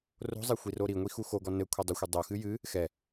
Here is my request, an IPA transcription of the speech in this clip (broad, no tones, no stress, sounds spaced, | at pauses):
r o̤ zˤ e xʷ i r o ɾ i ŋʷ i x u x o ɡ ɔ n ɘ kʷʰ ɛ dˤ u xʷ e dˤ o x ɨ j ɨ | x ɛ